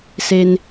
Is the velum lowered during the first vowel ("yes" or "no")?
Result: no